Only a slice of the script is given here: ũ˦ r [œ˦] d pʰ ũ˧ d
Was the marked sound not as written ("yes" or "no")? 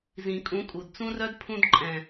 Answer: no